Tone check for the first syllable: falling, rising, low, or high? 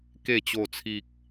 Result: low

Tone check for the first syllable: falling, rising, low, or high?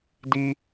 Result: high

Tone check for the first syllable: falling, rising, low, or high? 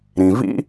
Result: low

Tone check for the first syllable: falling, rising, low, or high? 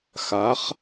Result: rising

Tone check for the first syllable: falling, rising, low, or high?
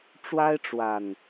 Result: high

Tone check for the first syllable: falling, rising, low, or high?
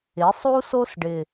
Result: rising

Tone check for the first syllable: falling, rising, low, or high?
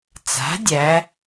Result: rising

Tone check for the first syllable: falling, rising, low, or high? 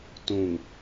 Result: low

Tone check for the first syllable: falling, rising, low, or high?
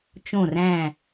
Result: falling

